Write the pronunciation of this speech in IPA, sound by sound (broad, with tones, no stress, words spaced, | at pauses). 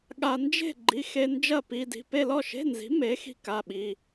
ɠa˧ nd͡ʒe̤˥˨ɡ͡ǃi˩˧˩xe˧ nd͡ʒɐ˥˨pi˧di̤˩˧˩ pe˥˨lɔ˥˨ʃe̤˧˥˧nzi̤˩˥ me˩˥xi̤˧ ka˩˧˩ ɓi˩˧˩